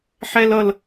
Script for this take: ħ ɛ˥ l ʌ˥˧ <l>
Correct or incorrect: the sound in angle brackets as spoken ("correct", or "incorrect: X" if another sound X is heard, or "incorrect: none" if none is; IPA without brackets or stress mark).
correct